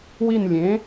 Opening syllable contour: falling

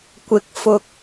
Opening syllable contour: rising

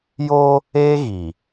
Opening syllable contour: high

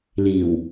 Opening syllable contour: low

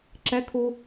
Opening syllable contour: rising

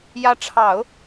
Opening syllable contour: rising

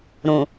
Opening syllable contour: low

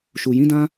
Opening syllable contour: low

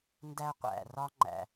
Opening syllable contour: high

